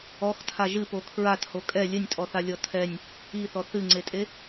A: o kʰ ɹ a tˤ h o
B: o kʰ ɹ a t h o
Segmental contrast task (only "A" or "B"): B